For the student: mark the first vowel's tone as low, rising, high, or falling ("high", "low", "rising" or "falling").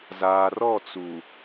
low